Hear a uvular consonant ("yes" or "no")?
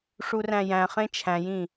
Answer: yes